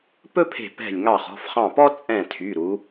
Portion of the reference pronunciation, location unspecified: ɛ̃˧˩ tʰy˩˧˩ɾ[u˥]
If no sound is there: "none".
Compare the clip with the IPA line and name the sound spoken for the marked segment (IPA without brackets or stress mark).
u˩˧